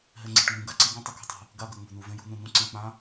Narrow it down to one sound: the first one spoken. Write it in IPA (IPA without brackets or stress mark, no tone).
ɦ